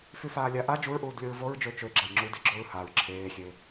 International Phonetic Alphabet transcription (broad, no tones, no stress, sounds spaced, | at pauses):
f y f aː lʲ a ʔ a d͡ʒ u ɹ ʔ uː d lʲ o ɹ v o ɹ d͡ʒ ø t͡ʃ ø ɡ͡ǁ a j ŋ͡ǁ u d e ɡ͡ǁ o ɹ h a ɹ ǁʰ eː xʲ e